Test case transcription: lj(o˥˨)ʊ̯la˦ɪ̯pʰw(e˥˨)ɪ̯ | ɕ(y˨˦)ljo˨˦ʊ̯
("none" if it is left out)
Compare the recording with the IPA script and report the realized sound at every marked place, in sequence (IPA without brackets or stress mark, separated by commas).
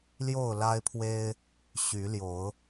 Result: o˥˨, e˦, y˨˦